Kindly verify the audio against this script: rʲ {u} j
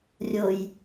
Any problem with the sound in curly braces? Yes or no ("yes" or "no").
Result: yes